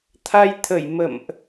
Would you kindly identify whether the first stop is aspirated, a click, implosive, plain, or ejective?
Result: aspirated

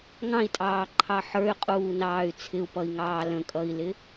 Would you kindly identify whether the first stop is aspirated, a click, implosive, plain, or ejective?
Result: ejective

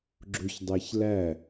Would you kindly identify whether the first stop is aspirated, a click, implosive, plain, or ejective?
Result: click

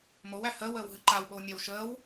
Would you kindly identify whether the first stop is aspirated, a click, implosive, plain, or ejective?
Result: click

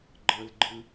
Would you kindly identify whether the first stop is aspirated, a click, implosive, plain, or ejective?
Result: click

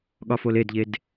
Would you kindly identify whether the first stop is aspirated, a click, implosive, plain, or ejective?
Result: implosive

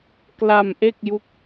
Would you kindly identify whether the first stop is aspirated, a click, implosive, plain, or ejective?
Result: plain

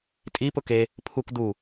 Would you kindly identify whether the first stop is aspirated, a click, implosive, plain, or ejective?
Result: ejective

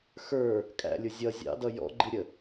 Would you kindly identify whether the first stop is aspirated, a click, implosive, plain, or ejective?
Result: ejective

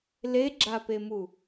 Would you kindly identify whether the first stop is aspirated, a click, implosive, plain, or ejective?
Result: click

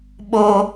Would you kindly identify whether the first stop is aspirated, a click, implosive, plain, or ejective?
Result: implosive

